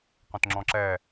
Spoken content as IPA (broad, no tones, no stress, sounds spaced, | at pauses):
q õ t ŋ͡ǁ ɔ̃ ǁ ɛ